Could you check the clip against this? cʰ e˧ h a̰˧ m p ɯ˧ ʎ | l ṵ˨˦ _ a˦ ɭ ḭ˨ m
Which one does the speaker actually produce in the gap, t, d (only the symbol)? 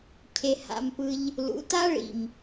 t